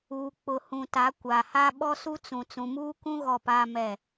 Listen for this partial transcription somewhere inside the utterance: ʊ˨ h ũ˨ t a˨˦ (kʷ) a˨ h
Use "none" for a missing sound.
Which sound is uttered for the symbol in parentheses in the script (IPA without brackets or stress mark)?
kʷ